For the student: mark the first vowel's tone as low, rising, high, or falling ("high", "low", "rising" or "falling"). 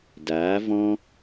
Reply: rising